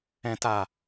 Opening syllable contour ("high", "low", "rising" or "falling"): low